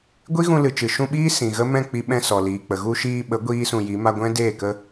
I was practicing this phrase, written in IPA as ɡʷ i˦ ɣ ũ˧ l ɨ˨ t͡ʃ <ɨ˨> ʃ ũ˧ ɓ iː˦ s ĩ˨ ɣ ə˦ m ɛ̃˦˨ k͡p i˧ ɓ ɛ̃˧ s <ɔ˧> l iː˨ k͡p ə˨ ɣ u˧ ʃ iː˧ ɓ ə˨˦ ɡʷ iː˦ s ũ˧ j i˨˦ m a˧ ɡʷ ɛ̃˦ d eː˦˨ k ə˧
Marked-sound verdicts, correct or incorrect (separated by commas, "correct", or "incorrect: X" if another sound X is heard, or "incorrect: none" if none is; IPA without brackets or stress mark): correct, incorrect: ɔ˨